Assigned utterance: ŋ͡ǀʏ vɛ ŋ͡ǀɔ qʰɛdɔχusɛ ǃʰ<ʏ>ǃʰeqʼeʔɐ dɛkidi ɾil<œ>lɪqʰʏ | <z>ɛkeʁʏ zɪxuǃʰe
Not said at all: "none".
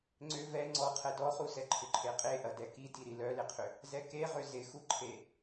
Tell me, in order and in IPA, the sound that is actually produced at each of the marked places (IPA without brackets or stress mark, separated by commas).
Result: ʏ, œ, z